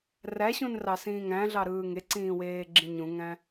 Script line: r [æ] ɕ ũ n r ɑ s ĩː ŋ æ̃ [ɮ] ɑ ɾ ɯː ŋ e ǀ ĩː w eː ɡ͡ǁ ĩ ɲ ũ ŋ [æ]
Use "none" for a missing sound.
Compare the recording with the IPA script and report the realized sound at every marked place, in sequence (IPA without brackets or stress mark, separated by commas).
æ, ɮ, æ̃